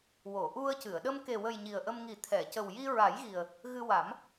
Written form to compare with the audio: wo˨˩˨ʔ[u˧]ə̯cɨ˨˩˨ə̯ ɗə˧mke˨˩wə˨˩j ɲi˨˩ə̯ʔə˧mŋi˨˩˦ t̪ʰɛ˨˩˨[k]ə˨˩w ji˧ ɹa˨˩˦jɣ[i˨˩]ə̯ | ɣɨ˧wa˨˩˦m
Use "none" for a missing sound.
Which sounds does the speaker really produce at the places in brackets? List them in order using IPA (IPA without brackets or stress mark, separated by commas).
u˧, c, i˨˩